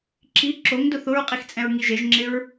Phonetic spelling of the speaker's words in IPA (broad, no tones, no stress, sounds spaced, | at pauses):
ǁ i ǁ o ŋ d ʊ θ ʊ ɹ qʼ i x t͡sʼ ɛ̃ ɹ ŋ i ʒ e ʒ ŋ͡ǁ ɪ ɹ